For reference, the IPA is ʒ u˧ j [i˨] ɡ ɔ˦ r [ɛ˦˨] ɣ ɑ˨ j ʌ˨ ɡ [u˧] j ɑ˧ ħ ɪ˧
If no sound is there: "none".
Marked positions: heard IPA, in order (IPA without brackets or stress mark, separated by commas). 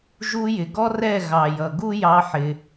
ɪ˨, ɛ˦˨, u˦